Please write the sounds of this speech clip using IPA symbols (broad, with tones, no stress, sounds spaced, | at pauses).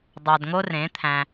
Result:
dˤ ɑ˨ d ŋ o˧ r ẽ˨˦ t̪ʰ æ̃˧